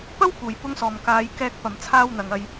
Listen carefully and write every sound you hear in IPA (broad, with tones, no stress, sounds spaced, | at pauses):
p ɐ˥ w k uː˨˩ j p ʊ˧ ŋ s ɔː˨˩ m k aː˨˧ j k ɛː˧ k̚ p ɐ˨˩ m t͡sʰ aː˧ w n̪ ɐ˨˩ ŋ ɐ˨ j